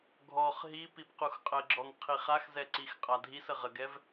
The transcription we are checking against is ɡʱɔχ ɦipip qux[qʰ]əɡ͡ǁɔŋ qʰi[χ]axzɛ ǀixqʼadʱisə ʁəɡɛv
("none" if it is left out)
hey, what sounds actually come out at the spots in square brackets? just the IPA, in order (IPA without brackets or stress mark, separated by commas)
qʼ, χ